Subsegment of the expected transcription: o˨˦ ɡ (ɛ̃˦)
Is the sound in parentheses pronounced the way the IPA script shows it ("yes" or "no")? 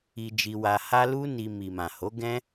yes